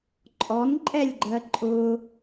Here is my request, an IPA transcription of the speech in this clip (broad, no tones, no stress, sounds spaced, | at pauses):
ǃʼ ɔ n ǃʼ ɛ lʲ ɡ͡ǃ ɜ ǃʼ ʊ